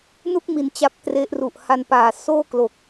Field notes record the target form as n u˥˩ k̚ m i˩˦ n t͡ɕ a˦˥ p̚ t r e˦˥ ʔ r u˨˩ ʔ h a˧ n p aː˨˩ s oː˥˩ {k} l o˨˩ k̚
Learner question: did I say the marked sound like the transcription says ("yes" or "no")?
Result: yes